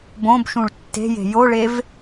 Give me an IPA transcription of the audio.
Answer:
b õ b ʃ ũ ɭ tː e̤ j e̤ j o ɭ e v

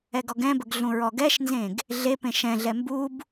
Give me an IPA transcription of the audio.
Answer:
ɛ ɡ ɔ ɡ ɛ̃ b ə ɡ ɮ ũ ɹ ɔ ɡ ɛ ʃ n z ẽ ɡ | ɮ e p ẽ ʃ ɛ̃ ɮ ɛ m b u b

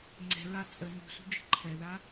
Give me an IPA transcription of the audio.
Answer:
ŋ͡ǀ ɛ̤ ɹ a t͡sʼ ə n ṳ s ṳ d͡ʒ ə̤ ǃʰ ɛ ð a

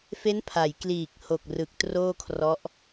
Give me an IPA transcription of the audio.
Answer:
f e˦˥ n pʰ a˩˦ j k l iː˨˩ k̚ h o˨˩ k̚ r ɯ˨˩ k̚ t r oː˥˩ kʰ r ɔ˦˥ ʔ

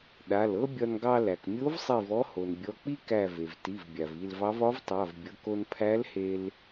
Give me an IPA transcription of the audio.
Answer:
ɗ a˩˧˩ l ɤ˥ bʲ ɒ˧ n ɡ ɑ˧ l æ˩ k mʲ o˧˥ v sˤ i˧˩ v ɔ˧˥ h o˩ n bʲ ɔ˩˧˩ k͡p i˥ k æ˧˩ v e˩ v t i˩˧˩ v bʲ a˩ v i˧˩ l v ɑ˧˥ v ɒ˧˥ v tˤ a˩˧˩ v bʲ ɤ˩˧˩ k o˧ n pʰ æ˧˥ l h e˧ l

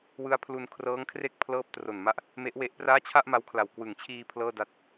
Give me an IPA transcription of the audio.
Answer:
w ɯ˦˥ a̯ pʰ l u˧ n kʰ r ɤː˦˥ ŋ kʰ r e˥˩ k̚ pʰ l ɤː˦˥ p̚ t r o˨˩ n m a˦˥ ʔ | m e˦˥ ʔ w e˦˥ ʔ p r aː˥˩ t͡ɕʰ a˥˩ ʔ m a˦˥ w kʰ l a˨˩ w k w ɯ˨˩ ŋ t͡ɕʰ iː˧ pʰ l ɤː˥˩ d a˥˩ t̚

